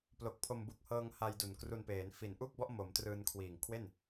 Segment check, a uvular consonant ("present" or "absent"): absent